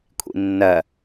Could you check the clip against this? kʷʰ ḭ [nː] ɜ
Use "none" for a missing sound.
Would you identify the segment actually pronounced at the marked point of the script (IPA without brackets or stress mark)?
nː